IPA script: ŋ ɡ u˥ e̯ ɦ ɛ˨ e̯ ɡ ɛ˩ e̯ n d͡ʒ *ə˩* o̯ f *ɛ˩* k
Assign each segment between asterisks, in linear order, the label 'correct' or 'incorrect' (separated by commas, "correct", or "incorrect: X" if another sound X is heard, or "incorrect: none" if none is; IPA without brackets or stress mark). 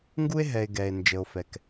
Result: correct, correct